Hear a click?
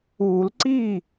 yes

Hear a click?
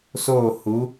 no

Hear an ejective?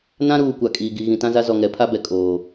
yes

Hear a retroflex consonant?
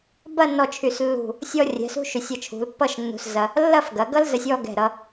no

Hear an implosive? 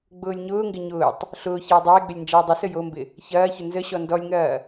no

